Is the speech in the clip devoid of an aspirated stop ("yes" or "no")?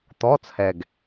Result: no